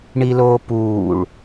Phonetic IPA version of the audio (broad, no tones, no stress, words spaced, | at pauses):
ɳiloːpuːɭ